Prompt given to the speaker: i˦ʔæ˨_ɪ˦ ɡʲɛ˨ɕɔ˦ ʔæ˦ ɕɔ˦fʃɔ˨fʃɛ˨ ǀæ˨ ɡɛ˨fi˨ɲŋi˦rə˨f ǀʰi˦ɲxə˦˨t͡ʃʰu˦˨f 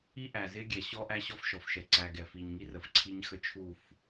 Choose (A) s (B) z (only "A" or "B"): B